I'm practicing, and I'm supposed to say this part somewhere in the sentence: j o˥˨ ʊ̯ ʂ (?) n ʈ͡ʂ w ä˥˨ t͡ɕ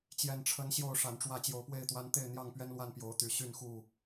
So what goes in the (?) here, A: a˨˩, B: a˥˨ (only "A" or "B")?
A